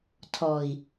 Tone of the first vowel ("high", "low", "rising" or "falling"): low